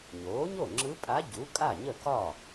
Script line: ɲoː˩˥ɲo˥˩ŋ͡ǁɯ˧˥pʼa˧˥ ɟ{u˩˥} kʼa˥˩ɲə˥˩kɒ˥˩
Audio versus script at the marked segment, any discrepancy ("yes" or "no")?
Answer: no